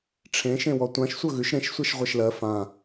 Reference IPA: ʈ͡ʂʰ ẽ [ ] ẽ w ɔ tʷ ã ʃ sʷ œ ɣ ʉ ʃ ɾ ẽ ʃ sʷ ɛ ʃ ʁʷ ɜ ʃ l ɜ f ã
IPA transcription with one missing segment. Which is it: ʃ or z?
ʃ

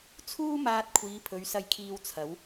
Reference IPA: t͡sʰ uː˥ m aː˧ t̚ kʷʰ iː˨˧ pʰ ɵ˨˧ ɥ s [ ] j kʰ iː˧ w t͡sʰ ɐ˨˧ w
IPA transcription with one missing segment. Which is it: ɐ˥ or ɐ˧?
ɐ˧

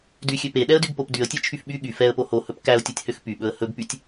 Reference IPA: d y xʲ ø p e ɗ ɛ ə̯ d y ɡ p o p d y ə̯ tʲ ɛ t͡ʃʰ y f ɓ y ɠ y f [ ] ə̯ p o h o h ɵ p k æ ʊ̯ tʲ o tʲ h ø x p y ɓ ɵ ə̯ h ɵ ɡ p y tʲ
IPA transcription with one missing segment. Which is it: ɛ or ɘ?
ɛ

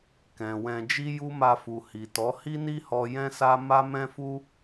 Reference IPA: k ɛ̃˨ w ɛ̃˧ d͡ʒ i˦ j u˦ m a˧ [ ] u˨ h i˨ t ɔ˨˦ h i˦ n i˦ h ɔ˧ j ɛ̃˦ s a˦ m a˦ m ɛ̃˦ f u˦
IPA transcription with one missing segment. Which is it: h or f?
f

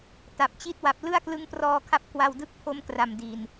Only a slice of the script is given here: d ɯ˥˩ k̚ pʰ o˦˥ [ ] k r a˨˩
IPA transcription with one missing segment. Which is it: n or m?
m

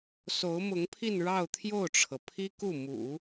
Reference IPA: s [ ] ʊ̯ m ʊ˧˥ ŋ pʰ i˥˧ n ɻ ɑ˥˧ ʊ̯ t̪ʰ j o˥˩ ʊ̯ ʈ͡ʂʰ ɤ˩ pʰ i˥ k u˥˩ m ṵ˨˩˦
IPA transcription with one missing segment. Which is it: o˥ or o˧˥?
o˧˥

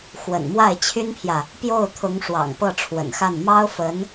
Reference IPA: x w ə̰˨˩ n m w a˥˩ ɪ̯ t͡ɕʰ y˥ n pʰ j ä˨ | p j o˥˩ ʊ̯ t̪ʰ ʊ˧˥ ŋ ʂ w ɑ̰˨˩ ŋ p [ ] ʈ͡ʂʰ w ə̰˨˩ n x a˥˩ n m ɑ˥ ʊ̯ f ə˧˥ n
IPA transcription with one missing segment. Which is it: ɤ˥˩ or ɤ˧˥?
ɤ˥˩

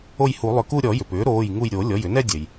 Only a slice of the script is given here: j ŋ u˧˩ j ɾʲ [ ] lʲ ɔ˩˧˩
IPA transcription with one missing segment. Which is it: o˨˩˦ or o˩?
o˨˩˦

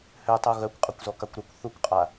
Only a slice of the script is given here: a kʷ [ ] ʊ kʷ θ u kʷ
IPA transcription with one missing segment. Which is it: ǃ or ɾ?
ɾ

